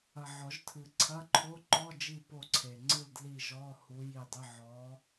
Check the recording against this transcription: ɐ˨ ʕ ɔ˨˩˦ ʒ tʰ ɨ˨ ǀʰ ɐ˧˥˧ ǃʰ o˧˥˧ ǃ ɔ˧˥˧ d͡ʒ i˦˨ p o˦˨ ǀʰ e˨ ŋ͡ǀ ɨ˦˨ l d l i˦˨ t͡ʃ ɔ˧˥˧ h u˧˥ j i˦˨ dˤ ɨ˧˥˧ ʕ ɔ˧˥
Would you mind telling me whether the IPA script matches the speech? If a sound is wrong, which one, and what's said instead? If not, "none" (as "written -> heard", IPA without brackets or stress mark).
t͡ʃ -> ʒ